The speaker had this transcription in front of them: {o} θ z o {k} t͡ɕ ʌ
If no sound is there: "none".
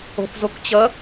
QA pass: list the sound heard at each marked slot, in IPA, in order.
o̤, k

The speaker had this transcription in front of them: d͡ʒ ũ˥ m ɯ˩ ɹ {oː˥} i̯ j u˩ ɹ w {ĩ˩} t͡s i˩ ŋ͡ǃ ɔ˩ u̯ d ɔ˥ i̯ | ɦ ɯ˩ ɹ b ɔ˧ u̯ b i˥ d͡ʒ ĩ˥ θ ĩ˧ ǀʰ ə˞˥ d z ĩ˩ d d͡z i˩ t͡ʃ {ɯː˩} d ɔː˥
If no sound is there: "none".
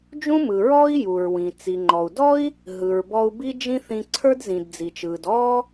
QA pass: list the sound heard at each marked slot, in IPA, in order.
ɔː˥, ĩ˩, ɯː˩

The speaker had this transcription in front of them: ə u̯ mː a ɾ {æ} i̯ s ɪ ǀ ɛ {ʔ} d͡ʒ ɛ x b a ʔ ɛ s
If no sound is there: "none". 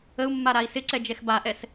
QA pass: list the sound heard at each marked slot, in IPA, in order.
a, none

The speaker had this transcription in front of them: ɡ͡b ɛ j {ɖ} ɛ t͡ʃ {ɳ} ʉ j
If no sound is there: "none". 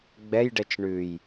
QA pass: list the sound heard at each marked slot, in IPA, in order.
ɖ, ɳ

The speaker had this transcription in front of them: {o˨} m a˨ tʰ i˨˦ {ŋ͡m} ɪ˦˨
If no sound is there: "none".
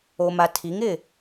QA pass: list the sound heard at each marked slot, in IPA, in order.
o˨, ŋ

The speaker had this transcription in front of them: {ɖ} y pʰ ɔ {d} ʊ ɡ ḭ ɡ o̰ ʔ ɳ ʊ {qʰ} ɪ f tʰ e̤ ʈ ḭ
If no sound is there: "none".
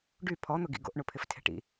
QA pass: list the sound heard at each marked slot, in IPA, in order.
ɖ, n̪, pʰ

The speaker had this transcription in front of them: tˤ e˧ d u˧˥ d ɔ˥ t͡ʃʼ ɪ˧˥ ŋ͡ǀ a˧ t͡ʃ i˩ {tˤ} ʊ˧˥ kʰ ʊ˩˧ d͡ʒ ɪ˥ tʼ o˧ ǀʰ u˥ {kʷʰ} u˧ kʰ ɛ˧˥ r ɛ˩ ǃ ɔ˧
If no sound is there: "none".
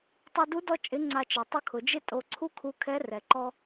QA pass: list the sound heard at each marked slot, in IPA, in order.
tˤ, kʰ

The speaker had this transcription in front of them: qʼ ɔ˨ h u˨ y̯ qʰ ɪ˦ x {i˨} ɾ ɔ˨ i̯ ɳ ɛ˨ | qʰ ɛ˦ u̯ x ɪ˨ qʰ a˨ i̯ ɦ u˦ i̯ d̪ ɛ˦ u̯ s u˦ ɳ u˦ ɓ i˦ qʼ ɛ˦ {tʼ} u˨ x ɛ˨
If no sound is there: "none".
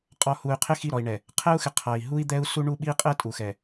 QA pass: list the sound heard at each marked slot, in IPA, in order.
i˦˨, tʼ

